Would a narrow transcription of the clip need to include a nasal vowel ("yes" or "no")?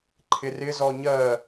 no